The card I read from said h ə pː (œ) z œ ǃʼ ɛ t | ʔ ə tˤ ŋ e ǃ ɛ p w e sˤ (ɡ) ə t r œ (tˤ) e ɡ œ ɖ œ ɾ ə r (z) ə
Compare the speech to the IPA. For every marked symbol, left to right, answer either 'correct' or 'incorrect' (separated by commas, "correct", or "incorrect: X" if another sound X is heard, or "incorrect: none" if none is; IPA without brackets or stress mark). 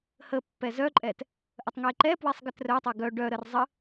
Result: incorrect: ɛ, correct, correct, incorrect: zˤ